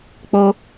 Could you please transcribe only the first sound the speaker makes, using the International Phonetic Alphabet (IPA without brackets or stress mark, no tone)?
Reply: k͡p